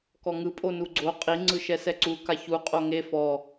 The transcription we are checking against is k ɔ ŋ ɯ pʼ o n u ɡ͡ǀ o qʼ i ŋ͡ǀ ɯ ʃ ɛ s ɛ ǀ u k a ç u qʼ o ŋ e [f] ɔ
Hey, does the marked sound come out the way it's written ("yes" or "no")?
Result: yes